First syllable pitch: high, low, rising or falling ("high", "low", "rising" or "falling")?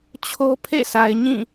high